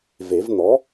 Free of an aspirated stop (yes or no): yes